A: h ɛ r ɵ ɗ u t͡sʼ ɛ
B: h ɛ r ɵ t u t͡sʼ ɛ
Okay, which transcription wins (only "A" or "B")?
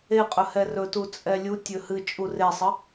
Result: B